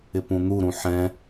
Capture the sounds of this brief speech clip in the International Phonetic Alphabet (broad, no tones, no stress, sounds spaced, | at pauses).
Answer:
ɪ p ũ n̪ u ɾ ũ ħ ɛ̃